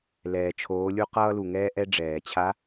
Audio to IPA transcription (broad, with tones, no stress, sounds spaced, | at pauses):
l ɛː˩ t͡ʃʰ oː˩˧ lʲ u˧ q ʌː˧ l u˩ ŋ ɛː˧ ʔ ɛ˧ ɖ͡ʐ ɛː˩ t͡ɕʰ a˧˥